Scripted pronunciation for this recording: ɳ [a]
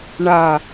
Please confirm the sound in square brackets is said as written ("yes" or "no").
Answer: yes